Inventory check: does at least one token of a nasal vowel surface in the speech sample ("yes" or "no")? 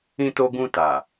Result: yes